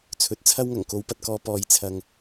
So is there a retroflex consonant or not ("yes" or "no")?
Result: no